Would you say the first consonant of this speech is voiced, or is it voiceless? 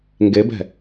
voiced